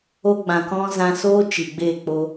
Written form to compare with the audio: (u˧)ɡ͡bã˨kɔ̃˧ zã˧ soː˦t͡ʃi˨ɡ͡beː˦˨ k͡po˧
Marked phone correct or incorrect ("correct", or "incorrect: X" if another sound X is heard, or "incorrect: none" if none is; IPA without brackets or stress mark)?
incorrect: o˧